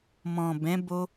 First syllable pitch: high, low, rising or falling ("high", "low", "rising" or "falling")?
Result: low